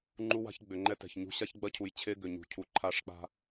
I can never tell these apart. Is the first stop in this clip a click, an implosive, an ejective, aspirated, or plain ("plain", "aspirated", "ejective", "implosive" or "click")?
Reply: click